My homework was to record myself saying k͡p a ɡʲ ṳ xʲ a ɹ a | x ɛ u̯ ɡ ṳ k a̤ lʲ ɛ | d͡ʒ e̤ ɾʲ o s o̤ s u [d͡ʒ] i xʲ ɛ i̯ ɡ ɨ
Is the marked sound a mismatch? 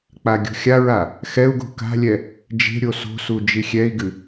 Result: no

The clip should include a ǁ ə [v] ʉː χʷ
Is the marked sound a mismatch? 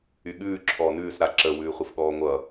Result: yes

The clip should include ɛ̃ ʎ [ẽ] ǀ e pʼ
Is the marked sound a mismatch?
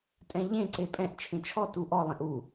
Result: no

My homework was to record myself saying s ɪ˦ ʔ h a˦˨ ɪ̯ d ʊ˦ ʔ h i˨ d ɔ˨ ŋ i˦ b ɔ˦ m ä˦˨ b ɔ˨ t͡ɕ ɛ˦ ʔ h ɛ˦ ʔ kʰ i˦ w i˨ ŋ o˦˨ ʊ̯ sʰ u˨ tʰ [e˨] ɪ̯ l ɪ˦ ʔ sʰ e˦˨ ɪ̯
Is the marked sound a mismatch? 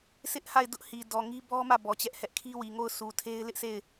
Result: yes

